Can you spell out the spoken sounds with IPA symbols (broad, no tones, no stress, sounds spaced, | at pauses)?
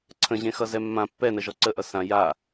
ǀʰ ə̃ ʑ ẽ x ʌ z ɛ mː ã pː ɛ n ə ʒ ɔ ǀ ə ʔ ʌ s ã j a